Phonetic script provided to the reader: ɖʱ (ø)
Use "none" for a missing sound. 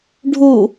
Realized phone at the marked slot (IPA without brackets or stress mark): u